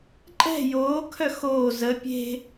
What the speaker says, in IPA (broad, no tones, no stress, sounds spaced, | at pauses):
ǃʼ ɛ̤ j oː kʰ œ x oː z ə pʲ e̤